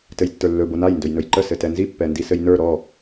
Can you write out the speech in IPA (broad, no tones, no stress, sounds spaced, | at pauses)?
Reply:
t ɘ j tː ə˞ lː ɵ b o n a j n d ɵ j n ɵ j ǃ ə s ɘ t ɛ n z i pː ɛ n d i s ɘ j n ə˞ ɾ ɔ